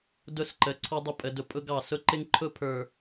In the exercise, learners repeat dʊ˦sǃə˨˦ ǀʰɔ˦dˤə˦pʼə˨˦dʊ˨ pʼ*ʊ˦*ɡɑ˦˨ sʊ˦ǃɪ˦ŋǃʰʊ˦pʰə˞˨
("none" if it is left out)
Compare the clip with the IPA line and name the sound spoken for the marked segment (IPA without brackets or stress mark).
ʊ˦